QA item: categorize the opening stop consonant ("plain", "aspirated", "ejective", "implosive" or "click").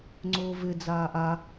click